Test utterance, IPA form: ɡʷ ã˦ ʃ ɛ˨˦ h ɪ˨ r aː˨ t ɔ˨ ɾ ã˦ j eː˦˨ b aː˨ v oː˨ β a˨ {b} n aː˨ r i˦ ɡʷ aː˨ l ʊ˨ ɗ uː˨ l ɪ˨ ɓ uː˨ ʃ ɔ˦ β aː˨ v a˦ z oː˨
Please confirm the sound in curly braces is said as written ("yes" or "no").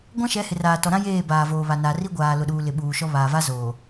no